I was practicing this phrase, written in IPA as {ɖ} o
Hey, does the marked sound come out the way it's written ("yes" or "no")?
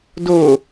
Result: no